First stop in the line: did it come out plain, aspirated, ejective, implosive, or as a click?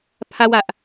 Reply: aspirated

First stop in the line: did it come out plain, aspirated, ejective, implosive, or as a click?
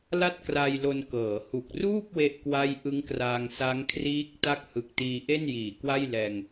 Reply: plain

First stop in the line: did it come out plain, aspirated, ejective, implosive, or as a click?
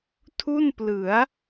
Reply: aspirated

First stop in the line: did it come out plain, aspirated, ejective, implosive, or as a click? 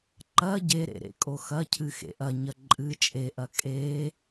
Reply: click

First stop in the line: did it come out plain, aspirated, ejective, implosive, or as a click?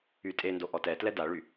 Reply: ejective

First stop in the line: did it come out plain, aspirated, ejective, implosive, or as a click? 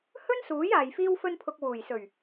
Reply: aspirated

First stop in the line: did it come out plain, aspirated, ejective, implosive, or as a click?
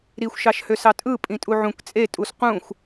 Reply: ejective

